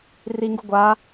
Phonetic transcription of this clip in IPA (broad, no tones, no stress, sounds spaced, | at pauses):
r i ŋ ɡ u ɡʷ a